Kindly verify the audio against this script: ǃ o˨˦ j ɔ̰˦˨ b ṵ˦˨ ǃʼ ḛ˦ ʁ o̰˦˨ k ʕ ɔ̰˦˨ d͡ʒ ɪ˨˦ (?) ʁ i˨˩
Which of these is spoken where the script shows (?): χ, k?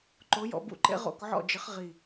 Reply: χ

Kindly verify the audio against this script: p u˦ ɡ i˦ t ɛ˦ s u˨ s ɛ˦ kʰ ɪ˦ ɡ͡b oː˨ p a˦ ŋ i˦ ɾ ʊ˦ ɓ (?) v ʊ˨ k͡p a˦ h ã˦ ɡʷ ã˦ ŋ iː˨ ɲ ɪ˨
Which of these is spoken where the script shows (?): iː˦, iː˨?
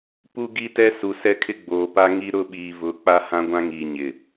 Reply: iː˨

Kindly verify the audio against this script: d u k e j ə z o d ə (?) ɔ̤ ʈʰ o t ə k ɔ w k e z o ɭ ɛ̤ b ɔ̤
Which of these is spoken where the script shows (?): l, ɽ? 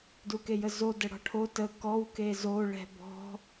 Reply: ɽ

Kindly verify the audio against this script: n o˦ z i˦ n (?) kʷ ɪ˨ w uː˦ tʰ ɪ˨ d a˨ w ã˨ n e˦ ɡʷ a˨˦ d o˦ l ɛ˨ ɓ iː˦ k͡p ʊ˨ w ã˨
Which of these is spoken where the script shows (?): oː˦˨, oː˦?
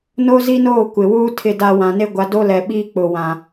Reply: oː˦˨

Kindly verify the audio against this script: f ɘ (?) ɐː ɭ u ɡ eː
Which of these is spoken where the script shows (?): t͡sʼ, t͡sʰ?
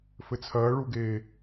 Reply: t͡sʰ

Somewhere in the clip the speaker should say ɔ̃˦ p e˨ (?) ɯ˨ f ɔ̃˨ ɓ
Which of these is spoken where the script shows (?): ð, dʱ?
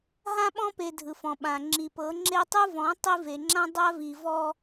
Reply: dʱ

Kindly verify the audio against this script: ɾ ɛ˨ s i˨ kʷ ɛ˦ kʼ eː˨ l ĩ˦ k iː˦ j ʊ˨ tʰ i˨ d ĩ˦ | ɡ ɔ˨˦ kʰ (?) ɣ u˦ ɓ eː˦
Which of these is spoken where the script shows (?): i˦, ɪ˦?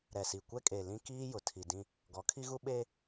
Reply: i˦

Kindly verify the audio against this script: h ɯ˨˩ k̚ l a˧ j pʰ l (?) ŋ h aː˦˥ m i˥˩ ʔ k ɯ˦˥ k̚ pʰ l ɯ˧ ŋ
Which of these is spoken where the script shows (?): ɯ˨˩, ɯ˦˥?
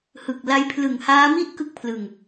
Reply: ɯ˨˩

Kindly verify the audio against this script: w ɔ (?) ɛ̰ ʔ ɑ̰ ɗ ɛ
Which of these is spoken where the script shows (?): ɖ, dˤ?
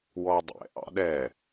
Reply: dˤ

